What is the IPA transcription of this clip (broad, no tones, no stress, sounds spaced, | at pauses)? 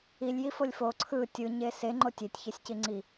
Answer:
i lʲ j i f o lʲ f o ǀʰ ɯ tʲ ɯ ɲ e s e ŋ͡ǃ o tʲ e tʲ ç e sʲ c i ŋ͡ǀ i